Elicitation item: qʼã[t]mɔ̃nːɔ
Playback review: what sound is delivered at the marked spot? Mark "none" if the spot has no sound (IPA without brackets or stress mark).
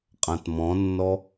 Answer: t